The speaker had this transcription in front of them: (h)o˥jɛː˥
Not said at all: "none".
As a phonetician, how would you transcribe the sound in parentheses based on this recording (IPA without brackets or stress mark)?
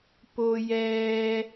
p